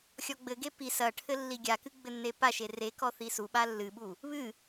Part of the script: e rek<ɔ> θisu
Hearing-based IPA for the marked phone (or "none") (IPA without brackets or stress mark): ɔ